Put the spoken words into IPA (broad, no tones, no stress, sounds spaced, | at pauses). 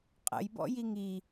qʼ ə̰ j b ɔ̰ j i ŋ i